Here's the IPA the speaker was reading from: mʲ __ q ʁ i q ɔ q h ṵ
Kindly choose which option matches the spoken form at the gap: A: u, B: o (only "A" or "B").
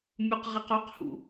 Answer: A